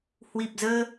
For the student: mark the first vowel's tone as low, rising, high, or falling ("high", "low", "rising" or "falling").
low